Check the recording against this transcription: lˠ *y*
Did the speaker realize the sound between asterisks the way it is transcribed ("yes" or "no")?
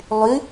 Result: yes